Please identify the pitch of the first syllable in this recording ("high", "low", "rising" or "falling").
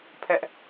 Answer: high